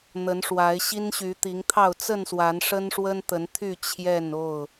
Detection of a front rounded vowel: present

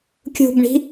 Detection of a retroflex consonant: present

